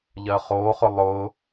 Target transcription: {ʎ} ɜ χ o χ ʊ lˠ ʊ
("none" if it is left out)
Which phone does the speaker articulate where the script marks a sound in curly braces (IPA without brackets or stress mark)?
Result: ʎ